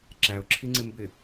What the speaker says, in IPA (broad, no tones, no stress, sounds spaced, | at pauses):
ǁ æ ʊ̯ ǁʰ i ŋ͡ǀ ɪ m b ɪ